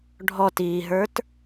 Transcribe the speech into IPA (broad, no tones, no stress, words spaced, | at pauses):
ɖʱɔtiːɦə˞t